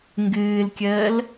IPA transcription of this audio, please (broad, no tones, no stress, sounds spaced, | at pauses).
ŋ ɡ ɨː l kʲ əː l